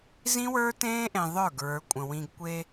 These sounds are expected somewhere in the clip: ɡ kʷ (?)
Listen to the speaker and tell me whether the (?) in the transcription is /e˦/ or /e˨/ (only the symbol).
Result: e˦